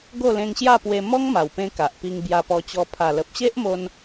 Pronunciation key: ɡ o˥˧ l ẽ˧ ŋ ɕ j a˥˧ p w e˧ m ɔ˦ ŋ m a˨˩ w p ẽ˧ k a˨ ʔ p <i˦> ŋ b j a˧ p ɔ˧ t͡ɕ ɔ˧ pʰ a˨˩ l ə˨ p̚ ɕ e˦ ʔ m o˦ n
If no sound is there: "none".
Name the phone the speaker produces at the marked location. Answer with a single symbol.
i˧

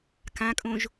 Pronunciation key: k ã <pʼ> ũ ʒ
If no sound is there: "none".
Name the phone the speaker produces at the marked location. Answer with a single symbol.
kʼ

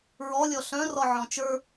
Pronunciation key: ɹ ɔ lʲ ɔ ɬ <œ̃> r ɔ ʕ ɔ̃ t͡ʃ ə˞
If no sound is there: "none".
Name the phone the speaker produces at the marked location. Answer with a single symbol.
œ̃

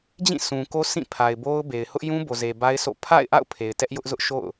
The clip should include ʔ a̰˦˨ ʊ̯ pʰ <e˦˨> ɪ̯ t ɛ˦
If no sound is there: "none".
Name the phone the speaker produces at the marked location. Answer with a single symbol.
e˨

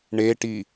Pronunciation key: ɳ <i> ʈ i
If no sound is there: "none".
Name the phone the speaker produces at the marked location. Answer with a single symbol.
e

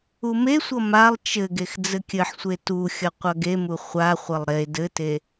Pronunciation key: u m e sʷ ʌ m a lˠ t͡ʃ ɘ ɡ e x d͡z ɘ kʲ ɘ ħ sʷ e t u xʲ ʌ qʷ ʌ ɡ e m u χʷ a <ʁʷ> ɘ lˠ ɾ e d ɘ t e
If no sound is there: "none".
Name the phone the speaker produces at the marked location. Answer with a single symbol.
χʷ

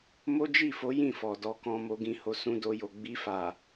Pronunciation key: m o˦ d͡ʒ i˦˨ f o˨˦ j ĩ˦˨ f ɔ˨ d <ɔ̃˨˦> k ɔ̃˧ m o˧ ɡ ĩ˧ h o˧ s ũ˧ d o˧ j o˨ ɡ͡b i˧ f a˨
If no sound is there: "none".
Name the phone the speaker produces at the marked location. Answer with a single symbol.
ɔ˨˦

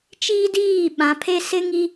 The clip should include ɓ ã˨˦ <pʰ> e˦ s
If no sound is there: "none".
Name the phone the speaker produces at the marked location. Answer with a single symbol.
pʰ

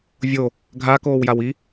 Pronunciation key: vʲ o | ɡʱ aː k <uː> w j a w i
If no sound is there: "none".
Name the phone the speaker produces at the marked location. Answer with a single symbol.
oː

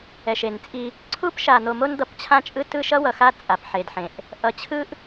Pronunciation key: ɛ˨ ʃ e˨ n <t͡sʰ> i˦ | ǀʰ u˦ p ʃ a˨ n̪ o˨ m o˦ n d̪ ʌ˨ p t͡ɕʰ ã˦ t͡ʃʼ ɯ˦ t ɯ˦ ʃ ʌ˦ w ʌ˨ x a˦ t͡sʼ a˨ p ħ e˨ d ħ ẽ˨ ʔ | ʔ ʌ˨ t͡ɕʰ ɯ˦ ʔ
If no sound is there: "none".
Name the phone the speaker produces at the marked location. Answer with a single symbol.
t͡sʼ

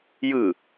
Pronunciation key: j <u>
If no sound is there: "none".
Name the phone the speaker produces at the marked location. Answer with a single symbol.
ɯ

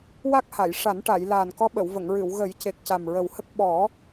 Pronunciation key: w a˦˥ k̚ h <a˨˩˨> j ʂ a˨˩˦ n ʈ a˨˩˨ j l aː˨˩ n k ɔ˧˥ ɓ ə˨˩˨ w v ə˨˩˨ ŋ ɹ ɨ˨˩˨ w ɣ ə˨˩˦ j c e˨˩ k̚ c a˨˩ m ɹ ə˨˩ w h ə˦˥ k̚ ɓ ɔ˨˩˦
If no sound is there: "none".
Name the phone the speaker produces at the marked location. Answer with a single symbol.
a˨˩˨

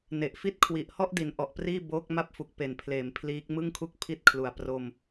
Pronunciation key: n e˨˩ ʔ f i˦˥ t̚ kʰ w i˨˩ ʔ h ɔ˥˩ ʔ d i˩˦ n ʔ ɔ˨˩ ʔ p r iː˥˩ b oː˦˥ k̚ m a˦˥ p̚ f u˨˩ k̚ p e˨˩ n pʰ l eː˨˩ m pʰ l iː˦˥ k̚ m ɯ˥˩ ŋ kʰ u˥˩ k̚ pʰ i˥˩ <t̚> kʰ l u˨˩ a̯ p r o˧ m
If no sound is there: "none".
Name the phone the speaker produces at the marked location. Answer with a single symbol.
t̚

